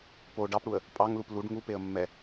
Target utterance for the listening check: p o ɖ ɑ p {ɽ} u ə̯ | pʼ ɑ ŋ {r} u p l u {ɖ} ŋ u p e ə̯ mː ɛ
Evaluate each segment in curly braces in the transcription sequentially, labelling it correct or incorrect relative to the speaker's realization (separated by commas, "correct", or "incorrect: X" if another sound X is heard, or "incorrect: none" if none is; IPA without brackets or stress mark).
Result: correct, incorrect: l, correct